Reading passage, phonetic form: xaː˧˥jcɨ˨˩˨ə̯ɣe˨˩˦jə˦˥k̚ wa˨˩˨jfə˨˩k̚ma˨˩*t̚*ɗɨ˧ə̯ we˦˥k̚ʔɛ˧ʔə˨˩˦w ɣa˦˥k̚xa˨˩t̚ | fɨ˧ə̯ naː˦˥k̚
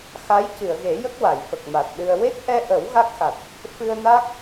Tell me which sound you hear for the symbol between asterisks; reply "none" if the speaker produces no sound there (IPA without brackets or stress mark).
t̚